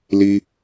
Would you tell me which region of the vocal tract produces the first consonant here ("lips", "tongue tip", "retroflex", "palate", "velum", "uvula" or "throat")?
tongue tip